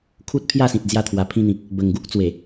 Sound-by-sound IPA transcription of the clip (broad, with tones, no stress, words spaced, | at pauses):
kʰu˦t̚pʰja˥˧sĩ˨t̚ d͡zja˧t̪ʰwa˨˩pʰĩ˧n̪ĩ˨k̚ | bə˨˩ŋɡu˦k̚t͡swe˨˩